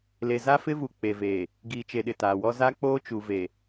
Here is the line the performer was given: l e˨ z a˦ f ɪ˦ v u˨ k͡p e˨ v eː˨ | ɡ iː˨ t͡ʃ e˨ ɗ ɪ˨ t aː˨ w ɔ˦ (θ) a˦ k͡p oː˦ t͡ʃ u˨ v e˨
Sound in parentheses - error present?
yes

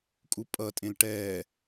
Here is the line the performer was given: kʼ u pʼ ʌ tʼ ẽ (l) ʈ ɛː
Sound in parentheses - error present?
no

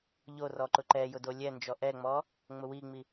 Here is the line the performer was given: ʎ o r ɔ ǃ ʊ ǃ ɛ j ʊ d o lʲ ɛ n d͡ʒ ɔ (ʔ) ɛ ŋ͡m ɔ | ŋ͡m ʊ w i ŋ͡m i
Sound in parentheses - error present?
no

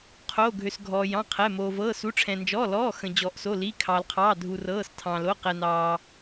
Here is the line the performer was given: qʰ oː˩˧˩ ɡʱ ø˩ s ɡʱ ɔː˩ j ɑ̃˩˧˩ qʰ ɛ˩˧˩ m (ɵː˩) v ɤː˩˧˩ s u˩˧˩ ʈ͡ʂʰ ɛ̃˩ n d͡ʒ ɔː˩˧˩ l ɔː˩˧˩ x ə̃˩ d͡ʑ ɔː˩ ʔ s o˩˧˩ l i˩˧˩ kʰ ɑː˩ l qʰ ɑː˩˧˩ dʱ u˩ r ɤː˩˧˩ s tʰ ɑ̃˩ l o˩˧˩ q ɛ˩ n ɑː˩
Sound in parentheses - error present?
yes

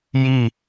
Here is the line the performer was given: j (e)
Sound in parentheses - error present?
yes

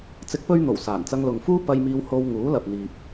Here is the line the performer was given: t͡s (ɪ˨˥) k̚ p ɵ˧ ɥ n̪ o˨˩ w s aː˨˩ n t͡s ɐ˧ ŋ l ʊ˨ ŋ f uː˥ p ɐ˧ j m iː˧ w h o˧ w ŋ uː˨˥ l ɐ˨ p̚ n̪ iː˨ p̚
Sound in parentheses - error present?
no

